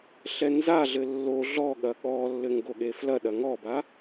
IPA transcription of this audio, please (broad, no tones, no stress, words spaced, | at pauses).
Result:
ɬɛnzaɮɘ lːo ɮɔɠɐ ɠɔlːɘ ŋɡoɠeflɐɗɐ ŋɔba